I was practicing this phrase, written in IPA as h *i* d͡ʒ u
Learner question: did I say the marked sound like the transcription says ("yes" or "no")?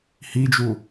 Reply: yes